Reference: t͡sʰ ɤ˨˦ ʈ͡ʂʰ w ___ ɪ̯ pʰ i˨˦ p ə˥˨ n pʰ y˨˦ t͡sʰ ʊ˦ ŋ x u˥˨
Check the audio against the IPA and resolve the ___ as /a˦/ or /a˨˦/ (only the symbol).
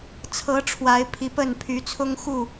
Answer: a˨˦